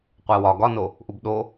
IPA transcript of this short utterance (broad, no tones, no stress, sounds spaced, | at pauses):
qʷ æ w ɒ ɡ ɒ n o | ʔ u b ɗ o